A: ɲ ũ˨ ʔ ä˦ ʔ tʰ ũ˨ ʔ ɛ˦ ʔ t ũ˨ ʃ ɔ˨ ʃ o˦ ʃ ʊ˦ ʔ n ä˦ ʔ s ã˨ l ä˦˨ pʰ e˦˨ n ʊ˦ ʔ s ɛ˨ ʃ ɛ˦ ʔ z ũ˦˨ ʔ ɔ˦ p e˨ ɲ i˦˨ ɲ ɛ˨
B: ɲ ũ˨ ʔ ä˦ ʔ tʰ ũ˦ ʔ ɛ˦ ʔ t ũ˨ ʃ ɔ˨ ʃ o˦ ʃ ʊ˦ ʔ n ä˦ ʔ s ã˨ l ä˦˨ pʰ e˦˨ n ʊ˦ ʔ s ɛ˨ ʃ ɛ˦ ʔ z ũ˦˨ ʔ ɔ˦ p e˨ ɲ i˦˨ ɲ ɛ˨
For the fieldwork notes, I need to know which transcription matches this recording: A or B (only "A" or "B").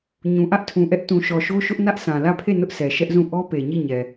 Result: A